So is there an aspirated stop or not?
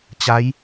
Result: no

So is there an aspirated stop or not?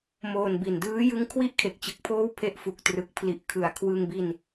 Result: yes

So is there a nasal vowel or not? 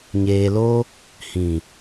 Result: yes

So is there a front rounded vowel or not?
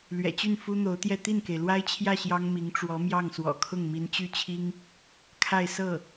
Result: yes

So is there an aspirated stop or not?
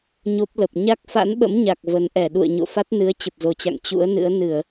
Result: no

